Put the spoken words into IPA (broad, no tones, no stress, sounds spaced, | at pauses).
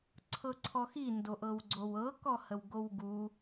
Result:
ǀʰ ɤ ǀʰ ɔ x i n d o ʔ ɤ w ɡ͡ǀ o w ɤ k ɔ h ə w ɡ o w ɡ u